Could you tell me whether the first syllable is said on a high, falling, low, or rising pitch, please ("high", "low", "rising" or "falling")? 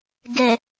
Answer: low